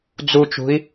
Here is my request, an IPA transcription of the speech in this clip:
d͡zut͡ʃṳi̯

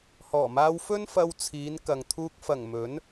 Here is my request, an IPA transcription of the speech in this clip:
hɔː˨˩maː˧wfɵ˥n fɐ˧wt͡sʰiː˨˧nkɐ˨ŋt̪ʰuː˧k̚ fɐ˨˩ŋ mɵ˨˥n

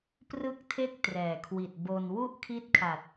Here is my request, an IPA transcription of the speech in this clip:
prɯ˥˩k̚tʰe˥˩k̚ trɛː˨˩kʰwi˨˩t̚ bo˧n wu˥˩ʔkʰi˦˥t̚kʰa˨˩t̚

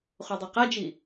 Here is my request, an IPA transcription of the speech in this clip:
χodˤeqad͡ʒi

